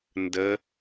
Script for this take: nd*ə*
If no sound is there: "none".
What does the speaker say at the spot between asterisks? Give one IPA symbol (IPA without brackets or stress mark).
ə